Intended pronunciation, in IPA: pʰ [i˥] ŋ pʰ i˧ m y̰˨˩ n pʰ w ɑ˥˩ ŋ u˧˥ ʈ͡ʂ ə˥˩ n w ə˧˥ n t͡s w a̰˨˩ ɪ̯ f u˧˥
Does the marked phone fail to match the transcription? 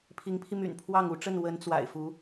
yes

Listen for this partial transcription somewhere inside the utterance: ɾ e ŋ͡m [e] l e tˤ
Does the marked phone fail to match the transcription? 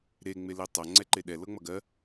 no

